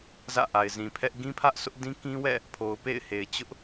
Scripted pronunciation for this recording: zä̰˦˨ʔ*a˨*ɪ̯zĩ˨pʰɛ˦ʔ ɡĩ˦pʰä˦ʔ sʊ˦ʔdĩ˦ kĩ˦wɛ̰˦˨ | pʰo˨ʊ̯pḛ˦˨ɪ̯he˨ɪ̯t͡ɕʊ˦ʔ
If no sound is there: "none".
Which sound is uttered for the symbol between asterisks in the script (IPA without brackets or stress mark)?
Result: a˨